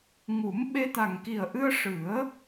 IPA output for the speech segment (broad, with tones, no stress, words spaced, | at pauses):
ŋu˨˩˦m ɓe˧t̪a˨˩ŋki˨˩ə̯ʔɨ˧ə̯ ʂɨ˨˩˦ə̯